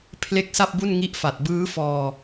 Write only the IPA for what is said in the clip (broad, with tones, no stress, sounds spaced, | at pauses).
pʰ l e˥˩ k̚ s a˥˩ p̚ b u˥˩ n ŋ i˥˩ ʔ f a˨˩ t̚ b ɯː˦˥ f ɔː˧